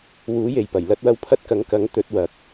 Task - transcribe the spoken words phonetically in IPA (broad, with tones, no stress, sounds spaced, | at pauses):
w uː˨˥ j e˨ j p ɐ˨˩ j l ɐ˧ t̚ w ɐ˧ w pʰ ɐ˧ t̚ k ɐ˨˥ ŋ k ɐ˨˥ ŋ t̪ ɵ˨˥ t̚ w ɐ˨˥ k̚